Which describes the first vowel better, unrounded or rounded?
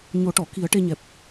rounded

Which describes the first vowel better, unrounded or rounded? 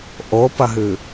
rounded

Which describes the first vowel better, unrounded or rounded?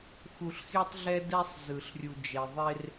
rounded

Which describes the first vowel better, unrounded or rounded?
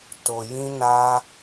rounded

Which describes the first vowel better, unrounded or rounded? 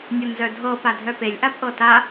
unrounded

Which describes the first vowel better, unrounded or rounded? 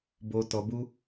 rounded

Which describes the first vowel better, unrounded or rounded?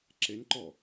unrounded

